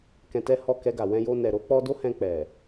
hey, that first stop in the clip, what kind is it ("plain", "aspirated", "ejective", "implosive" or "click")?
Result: plain